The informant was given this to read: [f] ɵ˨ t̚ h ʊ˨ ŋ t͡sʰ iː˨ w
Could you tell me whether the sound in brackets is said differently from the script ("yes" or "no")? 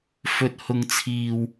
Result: no